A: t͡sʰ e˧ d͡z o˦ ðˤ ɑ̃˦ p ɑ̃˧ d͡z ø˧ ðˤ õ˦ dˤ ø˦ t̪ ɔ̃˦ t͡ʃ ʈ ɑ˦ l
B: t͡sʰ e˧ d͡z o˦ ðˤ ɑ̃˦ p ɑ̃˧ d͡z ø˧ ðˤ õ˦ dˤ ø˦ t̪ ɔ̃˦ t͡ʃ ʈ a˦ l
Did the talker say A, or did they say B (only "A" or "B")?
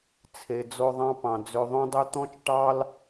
A